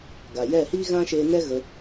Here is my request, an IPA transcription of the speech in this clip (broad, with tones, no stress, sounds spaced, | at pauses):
ɡ a˨ j ɛ˦˨ h iː˦ ɣ ã˦ ʃ eː˧ n ɛ˦ ɣ ə˧